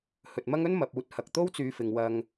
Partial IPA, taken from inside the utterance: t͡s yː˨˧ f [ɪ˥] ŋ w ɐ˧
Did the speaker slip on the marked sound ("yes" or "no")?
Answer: yes